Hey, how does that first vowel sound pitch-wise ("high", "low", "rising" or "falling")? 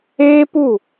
high